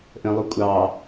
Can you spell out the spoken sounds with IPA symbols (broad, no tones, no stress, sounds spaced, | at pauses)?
ʔ ə̃ lˠ u kʷʼ ɑ